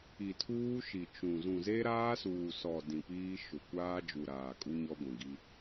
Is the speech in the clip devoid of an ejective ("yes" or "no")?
no